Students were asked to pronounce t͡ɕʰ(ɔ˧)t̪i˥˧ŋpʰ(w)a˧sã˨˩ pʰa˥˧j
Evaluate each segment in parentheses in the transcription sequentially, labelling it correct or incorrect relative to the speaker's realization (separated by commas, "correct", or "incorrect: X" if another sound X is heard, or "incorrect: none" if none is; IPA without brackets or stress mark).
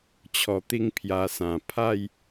correct, incorrect: j